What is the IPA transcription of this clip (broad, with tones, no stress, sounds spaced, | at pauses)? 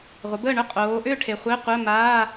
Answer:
ʁʷ ə˨˦ b əː˥˨ ɳ ʏ˥˨ qʼ oː˨˦ ʔ ʏː˥˨ ʈʰ e˨ χʷ e˧˥˧ qʷ əː˧˥˧ m aː˧˥˧